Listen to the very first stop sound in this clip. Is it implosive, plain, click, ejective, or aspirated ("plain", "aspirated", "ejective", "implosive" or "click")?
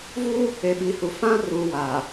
implosive